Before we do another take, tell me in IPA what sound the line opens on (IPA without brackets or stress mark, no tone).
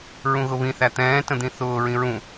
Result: ɹ